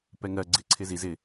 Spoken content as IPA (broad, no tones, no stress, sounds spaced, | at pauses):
p ɛ ŋ ɜ ɡ͡ǀ ɪ ǀʰ ɪ z i z ɪ